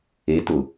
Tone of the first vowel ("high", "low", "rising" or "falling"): rising